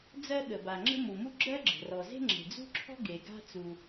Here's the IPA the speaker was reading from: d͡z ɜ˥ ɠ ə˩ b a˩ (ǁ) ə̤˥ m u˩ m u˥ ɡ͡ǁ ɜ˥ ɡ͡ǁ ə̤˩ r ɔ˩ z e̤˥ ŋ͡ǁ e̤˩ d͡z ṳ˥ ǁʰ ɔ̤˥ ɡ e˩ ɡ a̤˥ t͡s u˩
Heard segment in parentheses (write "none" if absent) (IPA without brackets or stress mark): ŋ͡ǁ